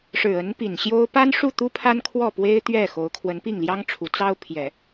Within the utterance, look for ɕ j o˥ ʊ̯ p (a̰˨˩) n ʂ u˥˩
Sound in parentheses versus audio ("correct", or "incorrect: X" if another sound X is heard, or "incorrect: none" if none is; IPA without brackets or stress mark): incorrect: a˥